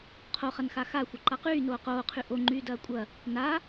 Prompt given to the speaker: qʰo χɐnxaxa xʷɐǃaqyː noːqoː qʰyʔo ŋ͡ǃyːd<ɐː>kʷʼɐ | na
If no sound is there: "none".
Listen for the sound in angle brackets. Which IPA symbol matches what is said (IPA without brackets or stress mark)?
ɐː